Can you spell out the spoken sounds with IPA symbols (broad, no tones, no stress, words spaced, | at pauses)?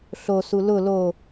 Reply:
ɬosu lʊ lo